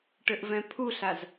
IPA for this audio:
ʈ ɘ ʔ v ɛ̃ pʰ u ɬ a z

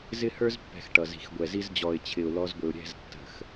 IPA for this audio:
z ɪ˦ h ə˞˦ z pː ɛ̤˨ x ʈ ʌ˨ z i̤˨ x ɡʷ ɛ˨ z i˦ z d͡ʑ ɔ˨ ɪ̯ t͡ɕʰ ɪ˨ ʊ̯ l ɔ˦ z ɡʷ ɪ˨ ʊ̯ ɾʲ ɛ̤˦˨ z tː ə̤˨ x

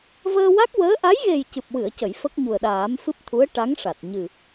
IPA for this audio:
v əː˧ w a˦˥ k̚ w əː˧˥ ʔ a˧˥ j ɣ e˨˩ j c ɨ˨˩ p̚ w ɨ˨˩˨ ə̯ c ə˨˩˨ j f ə˦˥ k̚ ɲ u˨˩ ə̯ ɗ aː˨˩˦ m f ɨ˦˥ p̚ t̪ʰ u˧˥ ə̯ ʈ a˧˥ ŋ ʂ a˨˩ t̚ ɲ ɨ˨˩

